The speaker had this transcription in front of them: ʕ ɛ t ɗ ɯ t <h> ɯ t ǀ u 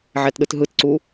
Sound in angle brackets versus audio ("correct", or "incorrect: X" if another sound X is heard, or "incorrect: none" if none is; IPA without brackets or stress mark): incorrect: ɦ